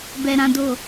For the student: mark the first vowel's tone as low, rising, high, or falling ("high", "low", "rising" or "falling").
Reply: low